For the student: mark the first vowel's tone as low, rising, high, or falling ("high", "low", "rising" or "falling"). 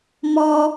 low